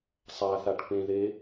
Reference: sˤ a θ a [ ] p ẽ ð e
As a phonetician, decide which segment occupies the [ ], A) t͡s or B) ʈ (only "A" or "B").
B